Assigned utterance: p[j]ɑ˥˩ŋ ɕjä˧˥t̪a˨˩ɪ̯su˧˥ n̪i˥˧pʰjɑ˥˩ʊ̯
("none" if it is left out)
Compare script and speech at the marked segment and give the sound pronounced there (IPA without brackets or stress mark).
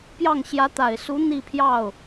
j